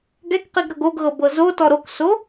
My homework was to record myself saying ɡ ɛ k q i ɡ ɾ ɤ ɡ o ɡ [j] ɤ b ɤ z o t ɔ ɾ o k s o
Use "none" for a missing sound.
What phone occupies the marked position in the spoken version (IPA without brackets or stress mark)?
ɣ